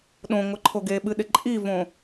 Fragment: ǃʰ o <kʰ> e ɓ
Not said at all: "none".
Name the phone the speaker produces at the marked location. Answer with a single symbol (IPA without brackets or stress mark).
ɡ